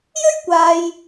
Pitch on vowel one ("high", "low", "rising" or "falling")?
high